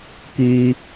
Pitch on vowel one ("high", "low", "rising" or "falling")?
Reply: low